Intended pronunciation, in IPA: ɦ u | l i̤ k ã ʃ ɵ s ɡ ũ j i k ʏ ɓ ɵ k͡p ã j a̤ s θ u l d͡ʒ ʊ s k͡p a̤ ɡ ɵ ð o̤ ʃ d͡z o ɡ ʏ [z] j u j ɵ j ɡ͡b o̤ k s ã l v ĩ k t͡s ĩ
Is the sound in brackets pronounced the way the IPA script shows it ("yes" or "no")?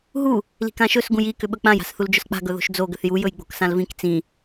no